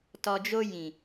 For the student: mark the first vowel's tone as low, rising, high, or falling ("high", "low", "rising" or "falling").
low